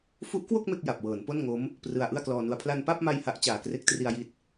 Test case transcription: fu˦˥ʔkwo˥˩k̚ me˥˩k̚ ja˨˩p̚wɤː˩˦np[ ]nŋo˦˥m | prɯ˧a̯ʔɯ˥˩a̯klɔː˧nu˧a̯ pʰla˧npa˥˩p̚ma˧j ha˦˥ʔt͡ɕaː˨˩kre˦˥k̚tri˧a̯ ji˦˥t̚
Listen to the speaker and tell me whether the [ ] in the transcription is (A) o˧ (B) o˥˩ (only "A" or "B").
B